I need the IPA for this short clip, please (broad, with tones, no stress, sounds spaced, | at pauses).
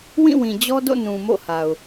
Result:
w ĩ˦˨ w ĩ˨ d͡ʑ ɔ˦ d o̰˦˨ n ũ˨ m o̰˦˨ h a˨ ʊ̯